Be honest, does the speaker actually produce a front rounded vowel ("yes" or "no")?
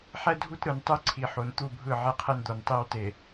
no